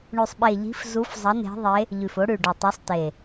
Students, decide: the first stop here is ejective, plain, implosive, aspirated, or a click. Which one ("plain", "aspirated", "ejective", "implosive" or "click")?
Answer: implosive